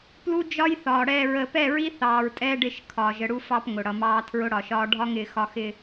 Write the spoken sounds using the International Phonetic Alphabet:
p l u˦ d͡ʒ ɒ˦ j θ ɒː˨ ɽ ɛː˨ ɹ əː˨ p ɛ˦˨ ɹ i˦ θ ɑː˨ ɹ tʼ ɛː˦ ɖ ɪ˦˨ ʃ kʰ ɒː˨ ʒ ə˨ ɽ u˦ f ɑ˦ p ŋ ʊ˨ ɽ ʌ˨ m ɑː˦ tʰ ɹ ʊ˦ ɽ ɒ˨ ʃ ɒː˦ ɖʱ ɒ˦ ŋ ɪː˨ x ɒ˨ x ɪ˨

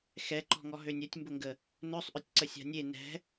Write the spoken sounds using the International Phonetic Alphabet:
x ɛ ǃ ɔ̤ ŋ ɔ ɦ ø nʲ œ tʲ m b ʊ ŋ ɡ ə | n œ sˤ ʔ œ tʲ ǀ ə sʲ a̤ nʲ e n ɛ̤

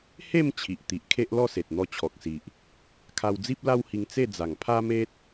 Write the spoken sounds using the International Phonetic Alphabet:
h e˥˧ m t͡ɕʰ i˨ ʔ t̪ i˨ ʔ kʰ e˦ ʔ l ɔ˥˧ s e˨ t̚ n̪ ɔ˧ t͡ɕʰ ɔ˨ k̚ s i˨ ʔ | kʰ a˧ w d͡z i˦ p̚ l a˦ w h i˧ ŋ t͡s e˥˧ d͡z a˨˩ ŋ pʰ a˦ m e˦ t̚

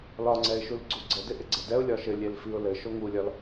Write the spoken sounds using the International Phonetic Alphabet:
l ɒ ŋ͡ǀ ɛ ɪ̯ ʃ u l ɡ͡ǀ u ɡ͡ǀ ə d ɪ ʔ ɪ ɡ͡ǀ ə d ɛ ʊ̯ lʲ ɒ ʃ ɘ lʲ e l f i ʊ̯ l ɘ ʃ o ŋ u lʲ ɒ l

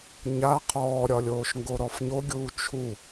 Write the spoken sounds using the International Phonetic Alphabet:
ɲ a qʰ ɔː ɾʲ ɒ lʲ oː ʃ ŋ ɡ o ɾ ɔ f ɲ o ɡʲ uː t͡ʃʰ u

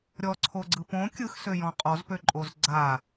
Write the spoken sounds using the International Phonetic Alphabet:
ɾʲ ɔ ǀʰ o ɡ͡ǀ ɯ p õ kʲ ɯ x s ø j ɔ̃ qʼ ɔ z p ø ǃʼ o z ɡ͡ǀ a

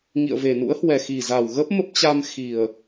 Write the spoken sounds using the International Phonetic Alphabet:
ŋ ḭ˧˨ ə̯ v e˨˩ n ṵ˧˥ ə̯ h w ɛ˨˩ x i˨˩ z a˨˩ w ɣ ə˦˥ p̚ m ə˦˥ p̚ t͡ɕ a˧ m x i˨˩ ə̯

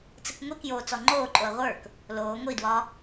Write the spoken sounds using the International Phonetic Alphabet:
t͡s ə k ŋʷ i k j oː t͡s ɔ ŋ͡ǃ oː ǃʼ o ɐ̯ ʁʷ ə˞ k | l oː ŋʷ i d w ɒ

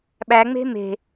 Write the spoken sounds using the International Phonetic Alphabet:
ɓ æ ŋ͡m e̤ m e̤

